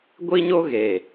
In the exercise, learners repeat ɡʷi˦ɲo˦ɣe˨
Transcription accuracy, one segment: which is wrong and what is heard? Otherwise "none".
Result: none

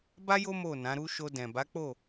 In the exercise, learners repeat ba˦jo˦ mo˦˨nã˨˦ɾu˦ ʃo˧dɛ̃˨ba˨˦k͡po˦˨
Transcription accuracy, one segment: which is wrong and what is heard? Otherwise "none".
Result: none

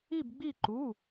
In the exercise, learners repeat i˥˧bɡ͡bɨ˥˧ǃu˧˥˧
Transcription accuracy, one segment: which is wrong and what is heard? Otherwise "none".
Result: ɨ˥˧ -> i˥˧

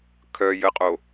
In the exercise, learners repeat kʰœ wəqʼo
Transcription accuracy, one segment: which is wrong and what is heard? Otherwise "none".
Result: w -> j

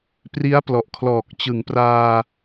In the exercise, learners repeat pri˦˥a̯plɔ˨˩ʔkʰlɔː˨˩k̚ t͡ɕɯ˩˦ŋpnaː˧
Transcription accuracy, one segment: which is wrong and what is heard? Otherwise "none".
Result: n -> r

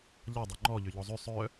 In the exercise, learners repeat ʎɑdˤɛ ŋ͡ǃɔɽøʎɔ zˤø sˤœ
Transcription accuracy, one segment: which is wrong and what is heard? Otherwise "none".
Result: ɽ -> ʎ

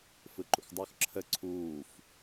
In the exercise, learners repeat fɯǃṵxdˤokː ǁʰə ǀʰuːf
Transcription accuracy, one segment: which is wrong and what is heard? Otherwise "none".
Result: kː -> x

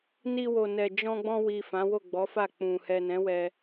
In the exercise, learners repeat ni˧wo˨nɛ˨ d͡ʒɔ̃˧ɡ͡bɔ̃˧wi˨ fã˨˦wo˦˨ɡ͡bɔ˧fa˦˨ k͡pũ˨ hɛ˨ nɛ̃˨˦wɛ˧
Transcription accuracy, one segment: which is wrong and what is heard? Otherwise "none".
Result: ɔ˧ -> ɔ˨˦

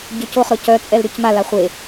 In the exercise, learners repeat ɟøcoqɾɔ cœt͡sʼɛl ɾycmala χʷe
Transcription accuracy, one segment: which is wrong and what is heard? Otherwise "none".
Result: q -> χ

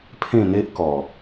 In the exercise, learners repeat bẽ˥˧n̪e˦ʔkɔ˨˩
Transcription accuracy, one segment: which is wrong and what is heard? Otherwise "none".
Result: b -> pʰ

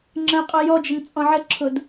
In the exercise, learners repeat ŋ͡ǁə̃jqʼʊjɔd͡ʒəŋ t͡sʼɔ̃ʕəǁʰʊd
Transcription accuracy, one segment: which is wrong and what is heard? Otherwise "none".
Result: none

